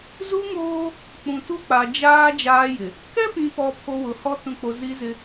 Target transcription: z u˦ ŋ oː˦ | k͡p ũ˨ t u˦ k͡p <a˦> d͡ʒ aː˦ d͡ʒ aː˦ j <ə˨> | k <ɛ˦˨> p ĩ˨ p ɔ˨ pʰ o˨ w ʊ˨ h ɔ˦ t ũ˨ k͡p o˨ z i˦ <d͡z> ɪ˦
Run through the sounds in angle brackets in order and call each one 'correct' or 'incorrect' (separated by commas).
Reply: incorrect, incorrect, incorrect, incorrect